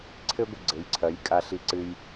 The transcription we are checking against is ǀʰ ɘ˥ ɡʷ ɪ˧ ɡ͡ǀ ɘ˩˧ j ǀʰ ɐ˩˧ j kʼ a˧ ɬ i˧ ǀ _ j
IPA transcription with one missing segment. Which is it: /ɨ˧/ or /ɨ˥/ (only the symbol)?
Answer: ɨ˧